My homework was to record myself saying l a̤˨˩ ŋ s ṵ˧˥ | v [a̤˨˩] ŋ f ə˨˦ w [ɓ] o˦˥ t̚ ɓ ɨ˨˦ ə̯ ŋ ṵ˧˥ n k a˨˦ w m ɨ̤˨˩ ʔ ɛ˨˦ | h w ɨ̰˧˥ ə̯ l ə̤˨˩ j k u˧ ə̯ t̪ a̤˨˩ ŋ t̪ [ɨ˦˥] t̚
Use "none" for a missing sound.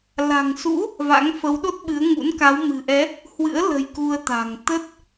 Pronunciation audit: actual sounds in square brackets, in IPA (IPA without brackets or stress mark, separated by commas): a̰˧˥, ɗ, ə˦˥